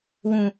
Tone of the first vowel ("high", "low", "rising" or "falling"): low